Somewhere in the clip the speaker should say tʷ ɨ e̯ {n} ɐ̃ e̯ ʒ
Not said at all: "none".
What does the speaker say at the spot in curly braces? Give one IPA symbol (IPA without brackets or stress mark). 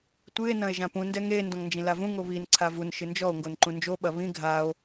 n